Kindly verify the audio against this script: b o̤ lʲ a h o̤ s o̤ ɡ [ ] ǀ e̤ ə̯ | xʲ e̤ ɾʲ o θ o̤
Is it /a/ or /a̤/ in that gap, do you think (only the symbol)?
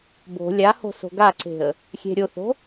a